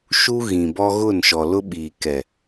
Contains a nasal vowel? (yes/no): yes